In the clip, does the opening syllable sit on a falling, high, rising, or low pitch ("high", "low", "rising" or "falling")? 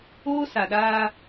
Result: high